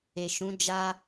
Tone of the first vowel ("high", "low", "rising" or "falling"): low